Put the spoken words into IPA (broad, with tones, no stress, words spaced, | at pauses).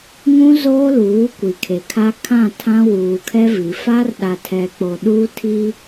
ŋũ˦ zoː˦luː˨˦ kʷi˨kʰe˨kʰa˦ kʰã˦˨tʰã˦ wuː˨ kʰɛ˦vi˨ fa˦rɗa˨tʰɛ˨k͡po˨ ɗu˦tʰi˦